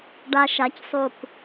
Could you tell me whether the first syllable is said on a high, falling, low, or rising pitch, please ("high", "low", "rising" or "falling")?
high